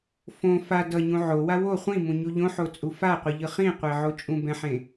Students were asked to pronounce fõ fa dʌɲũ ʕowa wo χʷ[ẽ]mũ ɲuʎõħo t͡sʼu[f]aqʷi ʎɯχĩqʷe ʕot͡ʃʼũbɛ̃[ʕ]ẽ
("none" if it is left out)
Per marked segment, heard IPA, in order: ĩ, f, ħ

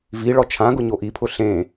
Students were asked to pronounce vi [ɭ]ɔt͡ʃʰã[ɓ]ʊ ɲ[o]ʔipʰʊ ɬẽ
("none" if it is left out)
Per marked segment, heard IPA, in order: ɭ, ɡ, o

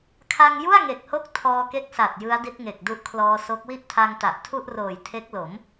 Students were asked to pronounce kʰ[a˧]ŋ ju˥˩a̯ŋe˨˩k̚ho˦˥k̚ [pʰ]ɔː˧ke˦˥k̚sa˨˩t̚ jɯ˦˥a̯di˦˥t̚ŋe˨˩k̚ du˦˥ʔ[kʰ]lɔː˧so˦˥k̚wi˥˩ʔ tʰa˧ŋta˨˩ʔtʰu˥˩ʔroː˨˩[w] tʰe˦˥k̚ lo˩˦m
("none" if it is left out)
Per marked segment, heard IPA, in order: a˧, tʰ, kʰ, j

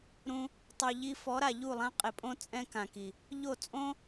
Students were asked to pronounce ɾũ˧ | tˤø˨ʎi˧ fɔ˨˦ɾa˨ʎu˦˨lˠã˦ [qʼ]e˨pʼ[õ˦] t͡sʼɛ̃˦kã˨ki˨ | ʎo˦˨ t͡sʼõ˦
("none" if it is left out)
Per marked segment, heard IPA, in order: qʼ, õ˦

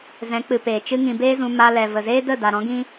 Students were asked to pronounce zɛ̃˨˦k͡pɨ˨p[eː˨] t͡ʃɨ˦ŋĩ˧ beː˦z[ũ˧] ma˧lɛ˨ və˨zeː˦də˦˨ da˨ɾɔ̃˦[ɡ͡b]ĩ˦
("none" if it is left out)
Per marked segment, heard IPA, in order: eː˨, ũ˧, ɡ

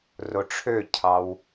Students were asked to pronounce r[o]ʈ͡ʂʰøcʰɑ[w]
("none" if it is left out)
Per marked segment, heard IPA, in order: o, w

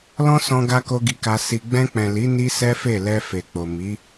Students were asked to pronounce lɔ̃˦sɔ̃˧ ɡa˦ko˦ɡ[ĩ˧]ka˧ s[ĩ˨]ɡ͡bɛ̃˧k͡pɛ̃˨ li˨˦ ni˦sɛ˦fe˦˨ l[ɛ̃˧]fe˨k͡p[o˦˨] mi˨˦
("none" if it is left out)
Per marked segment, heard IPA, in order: i˧, i˨, ɛ˧, o˨

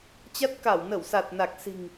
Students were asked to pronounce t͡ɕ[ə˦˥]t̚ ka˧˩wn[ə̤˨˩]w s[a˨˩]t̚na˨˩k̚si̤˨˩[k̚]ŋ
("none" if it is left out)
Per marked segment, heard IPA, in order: a˦˥, ə˧˩, a˨˩, none

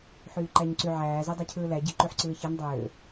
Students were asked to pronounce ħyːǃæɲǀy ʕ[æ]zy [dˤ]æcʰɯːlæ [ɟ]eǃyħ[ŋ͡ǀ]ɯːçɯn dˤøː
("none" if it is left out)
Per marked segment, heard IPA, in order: æː, dˤ, ɟ, ǀ

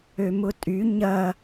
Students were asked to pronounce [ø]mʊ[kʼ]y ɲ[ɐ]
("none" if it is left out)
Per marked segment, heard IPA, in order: ø, tʼ, ɐ

